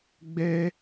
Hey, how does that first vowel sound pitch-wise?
high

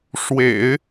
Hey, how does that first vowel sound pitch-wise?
low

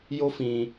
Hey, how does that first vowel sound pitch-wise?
high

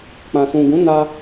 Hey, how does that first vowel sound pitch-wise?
low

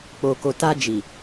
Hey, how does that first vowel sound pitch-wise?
low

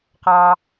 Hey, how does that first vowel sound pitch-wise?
high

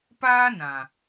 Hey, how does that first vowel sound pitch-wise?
high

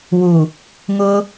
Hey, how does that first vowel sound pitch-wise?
low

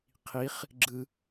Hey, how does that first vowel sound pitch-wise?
rising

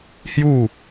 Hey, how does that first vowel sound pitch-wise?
falling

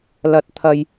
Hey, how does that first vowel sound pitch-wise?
high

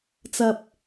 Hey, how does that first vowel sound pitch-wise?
low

